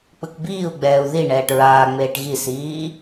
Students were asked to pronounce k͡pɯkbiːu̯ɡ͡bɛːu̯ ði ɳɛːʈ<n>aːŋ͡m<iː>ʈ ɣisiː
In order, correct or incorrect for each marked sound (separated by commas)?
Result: incorrect, incorrect